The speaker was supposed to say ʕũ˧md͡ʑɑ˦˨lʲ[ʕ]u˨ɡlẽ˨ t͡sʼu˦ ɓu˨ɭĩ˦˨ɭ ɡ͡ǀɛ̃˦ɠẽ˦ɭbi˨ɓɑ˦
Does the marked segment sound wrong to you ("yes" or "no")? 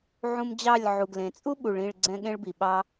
no